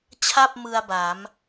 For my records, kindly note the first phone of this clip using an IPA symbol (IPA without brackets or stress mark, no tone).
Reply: t͡ɕʰ